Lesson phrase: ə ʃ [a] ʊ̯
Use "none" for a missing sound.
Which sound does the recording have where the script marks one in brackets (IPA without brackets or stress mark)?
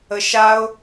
a